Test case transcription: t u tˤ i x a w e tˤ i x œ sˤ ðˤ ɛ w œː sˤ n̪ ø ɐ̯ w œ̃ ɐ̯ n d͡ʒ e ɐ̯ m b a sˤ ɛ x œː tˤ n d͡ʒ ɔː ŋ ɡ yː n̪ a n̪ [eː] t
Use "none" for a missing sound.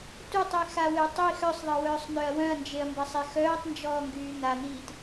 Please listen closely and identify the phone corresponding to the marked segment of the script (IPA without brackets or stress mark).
iː